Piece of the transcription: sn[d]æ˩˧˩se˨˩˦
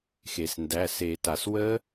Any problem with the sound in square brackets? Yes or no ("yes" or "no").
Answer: no